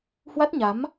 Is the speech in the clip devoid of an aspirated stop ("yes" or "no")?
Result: yes